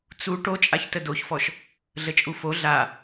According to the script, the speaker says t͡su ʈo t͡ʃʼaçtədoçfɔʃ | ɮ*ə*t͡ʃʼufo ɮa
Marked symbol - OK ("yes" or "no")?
yes